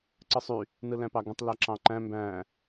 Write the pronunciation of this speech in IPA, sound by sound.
ǀ ɯ sˤ y | n ɯ l æ̃ p ɑ ɡ ũ tˤ l æ ǁ ɑ̃ ǃ æ̃ m b æ̃

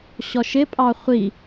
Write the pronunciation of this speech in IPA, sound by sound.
ɕ ɔ ʃ ɪ pʼ ɑ χʷ i

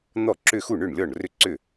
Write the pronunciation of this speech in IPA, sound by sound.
n̪ ɔ˥˩ ǁ ʏ˥˧ x u˥˩ ɳ ʏ˥˩ ɳ lʲ ɔ˥˩ ɳ r ʏ˥˧ ǀ ʏ˥˩

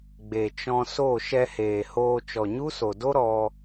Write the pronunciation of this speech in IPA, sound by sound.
ɡ͡b e˨ t͡ʃ ɔ̃˧ s o˦˨ ʃ ɛ˧ h eː˨ h oː˧ t͡ʃ ɔ˨ ɲ u˦ s o˨ d o˦ ɾ ɔ˧

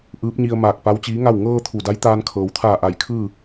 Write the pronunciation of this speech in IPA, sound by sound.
ʔ ɯː˧˥ p̚ ɲ i˧ ə̯ m aː˧˩ k̚ p a˧˥ w t͡ɕ iː˧˥ ŋ a˥˨ w ŋ ɤː˧ t̪ʰ u˧˩ d a˧˥ j t̪ aː˧ n kʰ ɤː˩ w t̪ʰ aː˧˩ ʔ a˧˩ j kʰ ɯː˥˨

